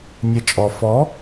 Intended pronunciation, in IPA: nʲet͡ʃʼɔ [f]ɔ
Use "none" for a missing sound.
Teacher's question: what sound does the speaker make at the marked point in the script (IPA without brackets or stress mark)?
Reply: f